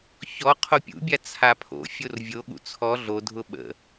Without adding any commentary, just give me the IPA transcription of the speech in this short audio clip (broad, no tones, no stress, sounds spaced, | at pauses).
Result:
ç ɔ qʰ o pʲ ṵ bʲ a t͡sʰ a pʰ o̰ fʲ o r vʲ o ɠ ṵ t͡sʰ ɔ ɮ o dʱ ʊ ɓ ə̰